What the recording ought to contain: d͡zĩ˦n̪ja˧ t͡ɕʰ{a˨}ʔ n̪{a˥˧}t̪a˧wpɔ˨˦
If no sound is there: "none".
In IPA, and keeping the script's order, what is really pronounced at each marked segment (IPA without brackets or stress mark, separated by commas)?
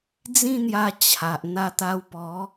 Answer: a˨, a˧